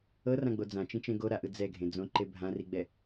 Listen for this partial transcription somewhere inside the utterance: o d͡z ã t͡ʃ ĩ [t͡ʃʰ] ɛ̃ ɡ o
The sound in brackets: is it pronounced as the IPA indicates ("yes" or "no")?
no